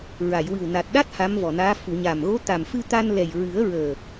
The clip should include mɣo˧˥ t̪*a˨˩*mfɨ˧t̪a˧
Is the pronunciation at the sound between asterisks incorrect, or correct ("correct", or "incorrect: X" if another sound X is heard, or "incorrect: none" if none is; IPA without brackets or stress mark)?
correct